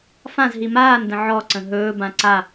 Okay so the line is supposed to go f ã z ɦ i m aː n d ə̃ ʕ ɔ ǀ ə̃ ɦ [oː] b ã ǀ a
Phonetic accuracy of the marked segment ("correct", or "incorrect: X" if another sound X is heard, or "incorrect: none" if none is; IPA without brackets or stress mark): incorrect: ɵː